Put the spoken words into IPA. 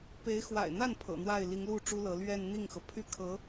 p e˧˥ ɪ̯ x w a̰˨˩ ɪ̯ n̪ a˥˩ n pʰ ɤ̰˨˩ n̪ w a˥˩ ɪ̯ l i˧˥ ŋ l u˥˩ ʈ͡ʂ u˥ l ɤ˧˥ l ɥ ɛ˥˧ n n̪ i˥˩ ŋ x ɤ˩ pʰ y˥ kʰ ɤ˧˥

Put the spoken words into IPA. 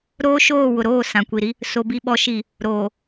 ɾ oː˦ ʃ oː˦˨ w ʊ˨ ɾ oː˦˨ s ã˨ kʷ i˨ ɾ i˦ | s o˨ b i˨ ɓ ɔ˨ ʃ i˨ | ɾ oː˨

